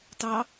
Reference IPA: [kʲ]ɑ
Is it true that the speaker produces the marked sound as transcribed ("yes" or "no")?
no